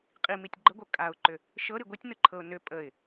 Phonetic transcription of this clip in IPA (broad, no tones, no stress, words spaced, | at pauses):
qʼimitʲ ɡ͡ǃəɡʷɤ kʼaʊ̯ǃʏ | ʃɤɾi ɡʷitʲnɯǃʰɤʊ̯ nʏ pʼəɪ̯